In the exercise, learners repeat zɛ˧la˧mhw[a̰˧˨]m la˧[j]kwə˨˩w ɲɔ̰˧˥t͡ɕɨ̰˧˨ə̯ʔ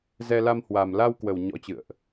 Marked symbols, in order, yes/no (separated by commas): no, no